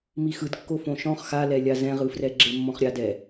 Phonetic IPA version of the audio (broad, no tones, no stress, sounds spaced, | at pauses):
m i x ɯ d kː o f õ ʃ ɔ̃ χ x a l ɛ lʲ a z ɛ̃ ʁ ɯ f r ɛ ɡ͡ǁ e mː ɔ̃ χ ɾʲ a d ɛ